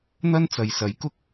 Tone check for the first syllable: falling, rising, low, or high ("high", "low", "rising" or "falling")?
high